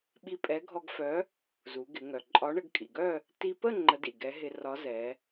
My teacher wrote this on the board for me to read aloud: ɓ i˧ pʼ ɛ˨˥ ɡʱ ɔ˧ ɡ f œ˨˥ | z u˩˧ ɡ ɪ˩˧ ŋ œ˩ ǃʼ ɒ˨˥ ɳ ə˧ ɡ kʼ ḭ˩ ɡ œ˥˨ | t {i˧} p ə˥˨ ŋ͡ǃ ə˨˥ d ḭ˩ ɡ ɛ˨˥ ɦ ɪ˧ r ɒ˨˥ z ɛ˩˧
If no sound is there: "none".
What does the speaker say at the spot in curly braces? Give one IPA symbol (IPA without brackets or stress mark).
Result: i˧